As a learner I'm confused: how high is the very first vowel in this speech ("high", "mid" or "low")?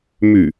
high